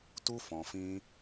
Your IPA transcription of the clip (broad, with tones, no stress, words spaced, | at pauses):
tu˧ fɔ̃˨fĩ˧